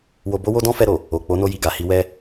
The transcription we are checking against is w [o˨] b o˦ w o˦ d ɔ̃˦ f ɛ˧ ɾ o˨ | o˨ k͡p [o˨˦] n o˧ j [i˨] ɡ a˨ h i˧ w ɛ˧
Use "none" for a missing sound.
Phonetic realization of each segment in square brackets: o˧, o˨˦, i˨

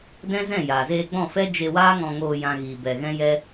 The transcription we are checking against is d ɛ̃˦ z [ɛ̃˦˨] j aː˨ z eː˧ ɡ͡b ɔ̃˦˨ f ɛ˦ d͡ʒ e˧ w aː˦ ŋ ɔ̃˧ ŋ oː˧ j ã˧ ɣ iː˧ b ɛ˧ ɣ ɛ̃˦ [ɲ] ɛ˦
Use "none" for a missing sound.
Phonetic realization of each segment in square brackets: ɛ̃˦˨, j

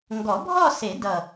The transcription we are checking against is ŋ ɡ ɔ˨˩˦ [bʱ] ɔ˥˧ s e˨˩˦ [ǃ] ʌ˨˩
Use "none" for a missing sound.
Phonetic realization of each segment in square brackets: bʱ, d

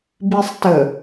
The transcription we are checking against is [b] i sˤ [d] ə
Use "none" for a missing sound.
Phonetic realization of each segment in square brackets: b, t

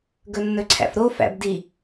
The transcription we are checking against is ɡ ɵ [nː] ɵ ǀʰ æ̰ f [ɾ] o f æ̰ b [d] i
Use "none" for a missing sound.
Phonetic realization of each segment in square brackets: nː, ɾ, d

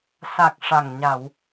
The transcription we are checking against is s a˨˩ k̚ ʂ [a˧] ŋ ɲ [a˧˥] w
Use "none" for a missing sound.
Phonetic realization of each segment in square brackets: a˨˩, a˨˩˨

